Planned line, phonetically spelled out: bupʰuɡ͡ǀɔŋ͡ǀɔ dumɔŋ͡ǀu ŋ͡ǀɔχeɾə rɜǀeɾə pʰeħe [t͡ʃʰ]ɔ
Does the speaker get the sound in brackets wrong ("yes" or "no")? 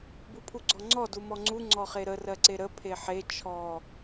no